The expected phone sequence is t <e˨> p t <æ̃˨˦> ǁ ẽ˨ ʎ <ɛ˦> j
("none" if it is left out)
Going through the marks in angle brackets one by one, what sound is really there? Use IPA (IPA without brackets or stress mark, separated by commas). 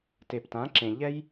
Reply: e˨, ã˨˦, ɛ˦